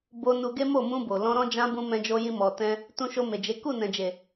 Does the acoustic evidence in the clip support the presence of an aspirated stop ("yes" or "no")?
no